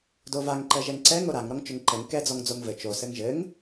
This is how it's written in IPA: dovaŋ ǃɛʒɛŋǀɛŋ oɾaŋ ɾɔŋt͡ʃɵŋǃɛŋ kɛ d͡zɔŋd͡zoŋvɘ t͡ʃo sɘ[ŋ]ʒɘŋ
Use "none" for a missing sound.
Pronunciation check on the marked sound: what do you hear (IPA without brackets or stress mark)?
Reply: ŋ